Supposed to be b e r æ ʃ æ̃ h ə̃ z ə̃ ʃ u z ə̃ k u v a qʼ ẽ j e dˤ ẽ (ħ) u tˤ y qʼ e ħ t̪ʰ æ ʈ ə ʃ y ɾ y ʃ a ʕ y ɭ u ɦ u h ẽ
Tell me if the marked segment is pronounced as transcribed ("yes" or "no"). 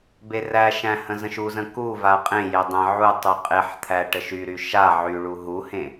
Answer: no